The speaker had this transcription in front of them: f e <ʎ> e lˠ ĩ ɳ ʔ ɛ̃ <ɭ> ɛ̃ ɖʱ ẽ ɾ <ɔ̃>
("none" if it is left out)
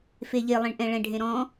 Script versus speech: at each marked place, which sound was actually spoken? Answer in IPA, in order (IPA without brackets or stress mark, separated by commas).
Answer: ʎ, ɭ, ɔ̃